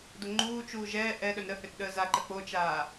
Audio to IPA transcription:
d o ŋ͡ǃ uː t͡ʃ uː ʒ ɛː ʔ ɛ ɗ œ n ɾ ə h ø t ɗ əː z a ǃ ə k͡p o t͡ʃ aː

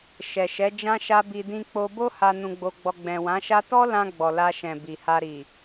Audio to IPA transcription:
ʃ ɛ˨ ʃ ɛ˨˦ d͡ʒ ã˦ ʃ a˦ b i˧ d ĩ˧ k͡p o˧ b o˦ h a˧ n ũ˧ ɡ͡b o˧ ɡ͡b ɔ˧ ɡ͡b ɛ̃˨ w ã˨˦ ʃ a˦ t ɔ˦ l ã˧ ɡ͡b ɔ˨ l a˧ ʃ ɛ̃˨ b i˨ h a˧ ɾ i˨

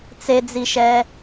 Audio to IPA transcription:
t͡s e d͡z i ʃ ɛ

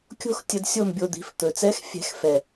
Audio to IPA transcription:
kʲ o̤˥˨ x tʲ ə˧ d sʲ o˥˨ m bʲ o˧ d̪ i̤˩˥ f t̪ ɵ˨˩ t͡s ɛ˧˥ x fʲ ɛ̤˨˩˦ x f ɛ˨˩

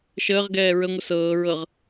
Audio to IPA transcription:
ʃ əː ʁ ɡ ɛː ɹ ə ŋʷ ə s ɤː ɹ ɤ ʁ

